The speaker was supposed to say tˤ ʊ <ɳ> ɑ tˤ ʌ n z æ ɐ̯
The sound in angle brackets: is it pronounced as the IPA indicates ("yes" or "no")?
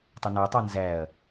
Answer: no